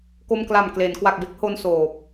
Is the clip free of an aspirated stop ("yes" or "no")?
yes